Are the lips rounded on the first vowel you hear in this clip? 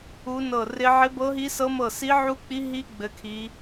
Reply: yes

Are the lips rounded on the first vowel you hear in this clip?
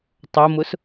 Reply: yes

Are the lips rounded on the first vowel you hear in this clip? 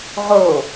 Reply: yes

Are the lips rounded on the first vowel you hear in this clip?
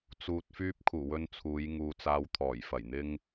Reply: yes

